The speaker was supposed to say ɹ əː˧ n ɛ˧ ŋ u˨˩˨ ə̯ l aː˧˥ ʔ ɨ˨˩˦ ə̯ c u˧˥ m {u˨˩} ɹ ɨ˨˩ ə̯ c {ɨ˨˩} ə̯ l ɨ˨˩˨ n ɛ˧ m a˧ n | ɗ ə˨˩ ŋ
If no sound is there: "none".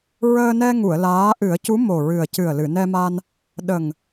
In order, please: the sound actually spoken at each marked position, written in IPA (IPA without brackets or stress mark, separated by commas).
o˨˩, ɨ˨˩